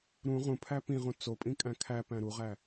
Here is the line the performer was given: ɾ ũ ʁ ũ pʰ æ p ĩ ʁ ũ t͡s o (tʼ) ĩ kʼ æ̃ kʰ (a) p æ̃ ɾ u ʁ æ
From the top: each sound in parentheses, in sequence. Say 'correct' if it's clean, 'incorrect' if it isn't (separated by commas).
incorrect, incorrect